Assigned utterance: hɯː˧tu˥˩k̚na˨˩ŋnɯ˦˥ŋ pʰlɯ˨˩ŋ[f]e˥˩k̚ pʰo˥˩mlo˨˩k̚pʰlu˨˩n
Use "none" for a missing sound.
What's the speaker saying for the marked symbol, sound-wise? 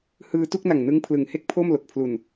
h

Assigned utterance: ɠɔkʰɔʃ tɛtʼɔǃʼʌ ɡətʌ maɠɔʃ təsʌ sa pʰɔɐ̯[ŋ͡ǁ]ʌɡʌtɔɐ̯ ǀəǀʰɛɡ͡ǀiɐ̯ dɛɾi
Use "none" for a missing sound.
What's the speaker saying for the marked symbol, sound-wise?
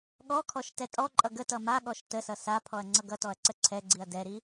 ŋ͡ǀ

